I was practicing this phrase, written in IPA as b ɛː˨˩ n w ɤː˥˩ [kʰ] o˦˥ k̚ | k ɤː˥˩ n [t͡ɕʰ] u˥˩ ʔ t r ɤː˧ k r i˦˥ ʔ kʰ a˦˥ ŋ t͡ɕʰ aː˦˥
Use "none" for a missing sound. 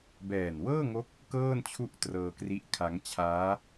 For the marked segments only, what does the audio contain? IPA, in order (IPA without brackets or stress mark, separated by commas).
ŋ, t͡ɕʰ